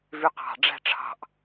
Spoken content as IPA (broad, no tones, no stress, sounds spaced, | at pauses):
v y q ɑ̤ ɖ͡ʐ æ̤ ʈ͡ʂʰ ɑ̤ ʔ